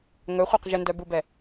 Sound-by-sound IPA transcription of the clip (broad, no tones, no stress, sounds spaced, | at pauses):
ŋ ɵ χʷ ɛ q ʒ ə n d œ b u b ɛ